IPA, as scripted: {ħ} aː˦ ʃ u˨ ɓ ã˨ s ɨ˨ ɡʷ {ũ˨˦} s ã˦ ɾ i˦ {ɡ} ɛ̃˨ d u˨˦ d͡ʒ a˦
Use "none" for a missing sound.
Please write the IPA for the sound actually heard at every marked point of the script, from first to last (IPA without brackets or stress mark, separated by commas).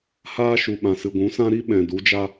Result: h, ũ˨˦, ɓ